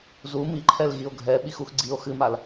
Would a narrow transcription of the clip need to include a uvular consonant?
no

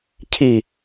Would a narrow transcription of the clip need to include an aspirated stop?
yes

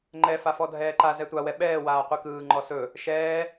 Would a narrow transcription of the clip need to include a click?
yes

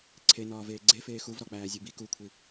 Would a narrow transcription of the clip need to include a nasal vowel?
no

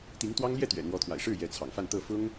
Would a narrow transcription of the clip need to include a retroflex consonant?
yes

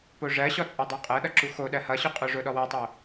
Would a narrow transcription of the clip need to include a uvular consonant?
yes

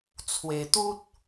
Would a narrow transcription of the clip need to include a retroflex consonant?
no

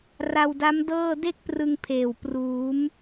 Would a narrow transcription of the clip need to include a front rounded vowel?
no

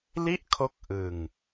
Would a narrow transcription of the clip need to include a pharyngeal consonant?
no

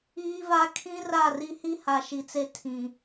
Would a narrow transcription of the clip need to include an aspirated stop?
yes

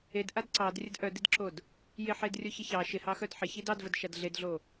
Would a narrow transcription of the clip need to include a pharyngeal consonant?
yes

